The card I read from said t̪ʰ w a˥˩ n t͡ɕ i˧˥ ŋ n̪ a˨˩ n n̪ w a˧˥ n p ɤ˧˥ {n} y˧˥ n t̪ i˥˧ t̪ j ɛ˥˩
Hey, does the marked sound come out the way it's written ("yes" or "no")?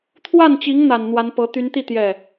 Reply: no